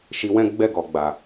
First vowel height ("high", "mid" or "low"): high